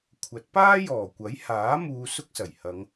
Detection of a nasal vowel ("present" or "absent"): absent